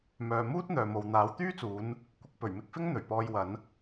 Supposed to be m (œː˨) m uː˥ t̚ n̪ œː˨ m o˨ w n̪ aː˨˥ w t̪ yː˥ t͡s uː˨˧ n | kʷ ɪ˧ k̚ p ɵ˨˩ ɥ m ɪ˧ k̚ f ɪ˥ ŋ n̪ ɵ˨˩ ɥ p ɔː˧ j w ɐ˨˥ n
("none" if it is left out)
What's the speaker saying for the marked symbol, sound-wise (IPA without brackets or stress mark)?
œː˨